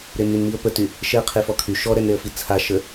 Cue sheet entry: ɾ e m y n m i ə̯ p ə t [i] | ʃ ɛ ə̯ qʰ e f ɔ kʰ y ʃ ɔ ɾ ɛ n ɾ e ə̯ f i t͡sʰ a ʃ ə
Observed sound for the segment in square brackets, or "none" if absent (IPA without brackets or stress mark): y